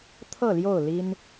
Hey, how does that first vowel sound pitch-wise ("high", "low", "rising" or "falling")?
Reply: falling